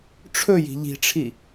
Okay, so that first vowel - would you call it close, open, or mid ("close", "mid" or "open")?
mid